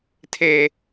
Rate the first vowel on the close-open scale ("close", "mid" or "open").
mid